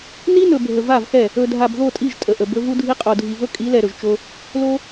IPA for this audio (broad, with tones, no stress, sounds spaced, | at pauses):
n i˦ n ɵ˨ bʱ ə˨ v a˦˨ v x ɛ˦˨ | ɵ˨ dʱ a˨ b ð o˦˨ tʼ i˦˨ ʒ tʼ ə˨ ʔ ə˨ b ɵ˦ v u˦ dʱ i˦ qʼ o˨ dʱ i˨ v ɵ˦ kʼ i˨˦ l ɛ˨ ɾ ɵ˨ ʒ t͡ʃ o˦ | l o˦